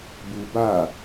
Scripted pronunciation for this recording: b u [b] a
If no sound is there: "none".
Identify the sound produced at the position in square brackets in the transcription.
b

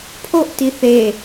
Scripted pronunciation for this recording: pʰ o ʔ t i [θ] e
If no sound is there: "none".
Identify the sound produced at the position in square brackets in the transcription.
θ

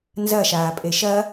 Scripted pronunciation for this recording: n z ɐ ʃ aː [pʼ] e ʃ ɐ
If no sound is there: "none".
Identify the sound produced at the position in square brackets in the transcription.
pʼ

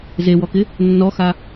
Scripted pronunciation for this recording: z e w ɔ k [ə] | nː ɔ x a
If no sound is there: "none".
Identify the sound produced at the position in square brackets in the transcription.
ɪ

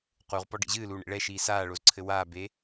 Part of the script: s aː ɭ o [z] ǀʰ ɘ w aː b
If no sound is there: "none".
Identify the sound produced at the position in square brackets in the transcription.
z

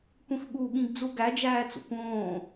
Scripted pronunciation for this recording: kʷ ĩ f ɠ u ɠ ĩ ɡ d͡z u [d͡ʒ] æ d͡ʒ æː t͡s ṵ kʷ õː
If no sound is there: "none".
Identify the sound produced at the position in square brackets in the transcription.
ɡ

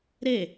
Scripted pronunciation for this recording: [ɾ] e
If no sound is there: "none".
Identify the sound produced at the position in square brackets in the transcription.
ɾ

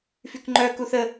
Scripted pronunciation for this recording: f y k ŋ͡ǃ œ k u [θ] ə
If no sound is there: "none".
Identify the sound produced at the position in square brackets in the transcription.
θ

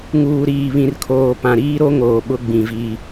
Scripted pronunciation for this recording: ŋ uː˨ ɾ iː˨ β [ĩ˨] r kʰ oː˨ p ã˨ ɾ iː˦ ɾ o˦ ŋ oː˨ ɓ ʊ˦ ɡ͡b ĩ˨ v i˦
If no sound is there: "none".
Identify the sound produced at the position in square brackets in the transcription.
ĩ˨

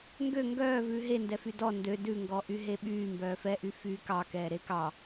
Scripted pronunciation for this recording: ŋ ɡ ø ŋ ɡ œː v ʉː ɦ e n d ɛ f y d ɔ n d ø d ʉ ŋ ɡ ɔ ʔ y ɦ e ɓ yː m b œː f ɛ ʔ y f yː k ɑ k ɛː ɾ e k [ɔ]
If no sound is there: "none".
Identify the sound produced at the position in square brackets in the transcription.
ɑ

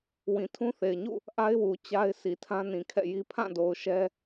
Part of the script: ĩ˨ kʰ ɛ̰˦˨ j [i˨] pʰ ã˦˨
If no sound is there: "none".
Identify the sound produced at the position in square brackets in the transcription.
i˦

